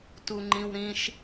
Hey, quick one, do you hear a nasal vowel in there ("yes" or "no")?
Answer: yes